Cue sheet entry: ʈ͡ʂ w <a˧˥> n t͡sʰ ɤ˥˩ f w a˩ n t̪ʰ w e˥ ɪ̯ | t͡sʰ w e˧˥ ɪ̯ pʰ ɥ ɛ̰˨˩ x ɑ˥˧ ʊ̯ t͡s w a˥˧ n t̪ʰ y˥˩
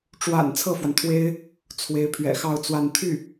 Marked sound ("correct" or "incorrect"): incorrect